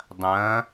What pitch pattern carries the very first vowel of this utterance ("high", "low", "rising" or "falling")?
rising